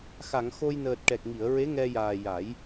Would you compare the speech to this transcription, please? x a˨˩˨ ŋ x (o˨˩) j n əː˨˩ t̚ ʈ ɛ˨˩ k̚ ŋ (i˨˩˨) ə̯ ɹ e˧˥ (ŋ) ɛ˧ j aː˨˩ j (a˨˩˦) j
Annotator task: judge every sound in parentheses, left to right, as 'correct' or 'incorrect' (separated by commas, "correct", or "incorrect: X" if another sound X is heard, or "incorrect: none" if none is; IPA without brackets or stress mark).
incorrect: o˧, correct, correct, correct